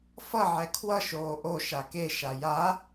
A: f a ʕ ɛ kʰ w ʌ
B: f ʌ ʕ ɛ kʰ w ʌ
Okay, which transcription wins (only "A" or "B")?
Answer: B